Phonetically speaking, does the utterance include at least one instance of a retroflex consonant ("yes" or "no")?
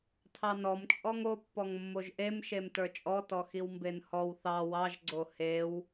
no